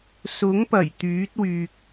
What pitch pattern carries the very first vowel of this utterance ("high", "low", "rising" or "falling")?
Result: rising